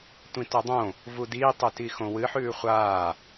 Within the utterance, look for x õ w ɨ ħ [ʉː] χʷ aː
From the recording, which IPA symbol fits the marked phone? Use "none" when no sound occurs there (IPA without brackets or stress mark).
ʉː